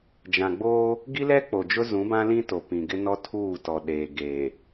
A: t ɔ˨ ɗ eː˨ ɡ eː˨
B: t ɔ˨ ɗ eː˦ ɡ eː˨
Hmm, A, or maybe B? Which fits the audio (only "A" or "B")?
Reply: A